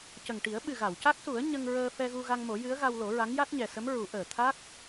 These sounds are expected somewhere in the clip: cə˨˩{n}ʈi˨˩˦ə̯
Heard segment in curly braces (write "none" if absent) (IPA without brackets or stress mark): ŋ